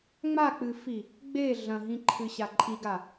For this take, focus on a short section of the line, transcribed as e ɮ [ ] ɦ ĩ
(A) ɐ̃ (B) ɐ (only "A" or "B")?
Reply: A